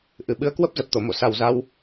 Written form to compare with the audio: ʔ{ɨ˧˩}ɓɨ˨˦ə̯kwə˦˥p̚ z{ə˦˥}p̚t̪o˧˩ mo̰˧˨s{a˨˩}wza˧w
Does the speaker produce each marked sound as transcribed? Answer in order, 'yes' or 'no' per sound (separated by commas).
yes, no, yes